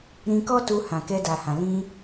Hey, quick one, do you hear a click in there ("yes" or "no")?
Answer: no